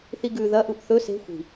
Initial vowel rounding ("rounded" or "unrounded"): unrounded